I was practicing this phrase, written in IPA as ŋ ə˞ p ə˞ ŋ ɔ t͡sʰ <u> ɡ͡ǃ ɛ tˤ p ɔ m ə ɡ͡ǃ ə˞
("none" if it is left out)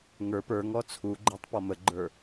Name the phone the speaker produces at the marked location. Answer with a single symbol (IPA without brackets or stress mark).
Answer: u